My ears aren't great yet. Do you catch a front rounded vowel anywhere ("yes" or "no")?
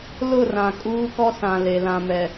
no